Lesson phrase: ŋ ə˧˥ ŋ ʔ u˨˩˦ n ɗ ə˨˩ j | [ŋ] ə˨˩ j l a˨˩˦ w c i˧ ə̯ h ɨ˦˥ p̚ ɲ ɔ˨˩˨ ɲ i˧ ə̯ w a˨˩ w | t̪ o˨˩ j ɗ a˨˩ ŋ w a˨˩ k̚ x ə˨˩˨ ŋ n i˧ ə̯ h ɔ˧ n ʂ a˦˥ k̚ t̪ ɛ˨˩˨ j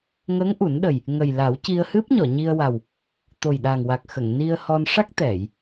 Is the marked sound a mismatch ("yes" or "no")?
no